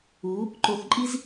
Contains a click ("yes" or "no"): yes